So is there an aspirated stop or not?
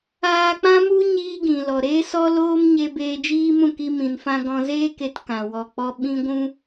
no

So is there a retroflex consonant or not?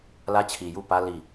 no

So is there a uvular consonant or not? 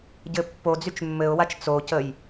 no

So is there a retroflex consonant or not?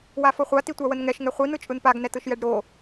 yes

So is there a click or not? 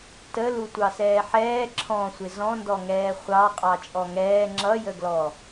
yes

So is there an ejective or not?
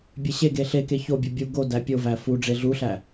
no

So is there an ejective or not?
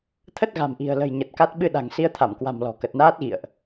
no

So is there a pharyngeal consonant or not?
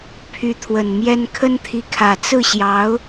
no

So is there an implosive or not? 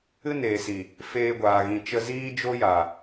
no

